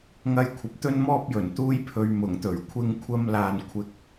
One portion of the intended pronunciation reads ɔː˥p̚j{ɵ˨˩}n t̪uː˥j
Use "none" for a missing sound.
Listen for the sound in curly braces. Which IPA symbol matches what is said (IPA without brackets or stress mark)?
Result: ɵ˨˩